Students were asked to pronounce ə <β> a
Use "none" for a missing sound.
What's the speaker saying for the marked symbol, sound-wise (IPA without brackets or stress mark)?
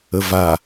v